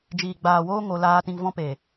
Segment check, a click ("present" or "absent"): absent